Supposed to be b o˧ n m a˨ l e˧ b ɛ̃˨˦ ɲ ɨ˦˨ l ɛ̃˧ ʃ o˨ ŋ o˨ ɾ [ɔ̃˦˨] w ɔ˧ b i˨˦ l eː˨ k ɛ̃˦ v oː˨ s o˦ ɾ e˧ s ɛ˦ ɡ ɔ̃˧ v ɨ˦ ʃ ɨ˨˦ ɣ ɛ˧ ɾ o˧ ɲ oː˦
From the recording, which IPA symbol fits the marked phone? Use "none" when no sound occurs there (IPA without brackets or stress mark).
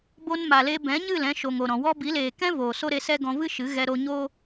ɔ̃˨